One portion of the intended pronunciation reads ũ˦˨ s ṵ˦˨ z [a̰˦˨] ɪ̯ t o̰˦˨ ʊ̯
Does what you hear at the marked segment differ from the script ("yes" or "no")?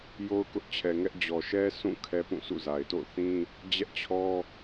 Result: yes